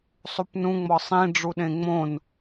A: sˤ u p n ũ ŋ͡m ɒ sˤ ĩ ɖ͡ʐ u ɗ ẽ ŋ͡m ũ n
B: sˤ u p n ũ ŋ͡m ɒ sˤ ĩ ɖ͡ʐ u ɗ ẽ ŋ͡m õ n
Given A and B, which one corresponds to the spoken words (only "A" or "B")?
B